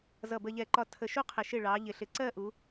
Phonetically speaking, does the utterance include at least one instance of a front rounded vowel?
no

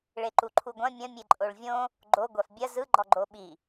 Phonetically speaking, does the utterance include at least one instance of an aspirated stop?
yes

